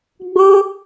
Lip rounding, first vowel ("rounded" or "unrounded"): rounded